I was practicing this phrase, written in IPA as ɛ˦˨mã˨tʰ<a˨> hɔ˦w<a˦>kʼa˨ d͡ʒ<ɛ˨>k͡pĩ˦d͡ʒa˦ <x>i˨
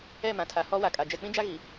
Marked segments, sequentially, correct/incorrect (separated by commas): correct, incorrect, correct, incorrect